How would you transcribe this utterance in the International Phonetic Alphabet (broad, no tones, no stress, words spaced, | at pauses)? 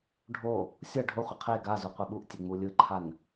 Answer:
ɖʱo | sʲʌ ɖʱoχʷʌ qʰe ɡazu qʷɛɓuʔtʲe ŋ͡mulʲɯǃʰan